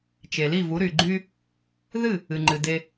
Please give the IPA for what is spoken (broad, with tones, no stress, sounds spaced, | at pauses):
t͡ʃ e˩ l i˥˩ v u˩˥ ɾ y˩ ɡ͡ǃ y˧ | ð ɨ˥˩ | ɨ˩ ŋ͡ǃ ɨ˩ d e˧